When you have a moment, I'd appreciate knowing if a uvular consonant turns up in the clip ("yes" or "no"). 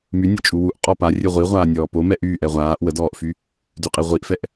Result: yes